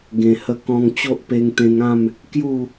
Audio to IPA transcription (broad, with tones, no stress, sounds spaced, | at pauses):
ɡ ẽ˨˩ h ə˧ k ɔ̃˧ ŋ t͡ɕ o˦ ʔ p e˧ ŋ t̪ ẽ˧ ŋ ã˥˧ m | k j u˥˧